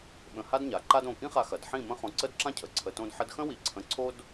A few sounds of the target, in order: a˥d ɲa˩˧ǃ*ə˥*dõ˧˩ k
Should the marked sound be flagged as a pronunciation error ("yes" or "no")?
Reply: yes